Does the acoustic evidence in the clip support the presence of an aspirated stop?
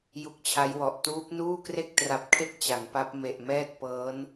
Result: yes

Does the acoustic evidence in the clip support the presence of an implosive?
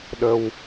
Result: yes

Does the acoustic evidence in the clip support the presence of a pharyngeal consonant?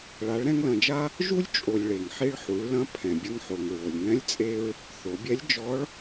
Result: yes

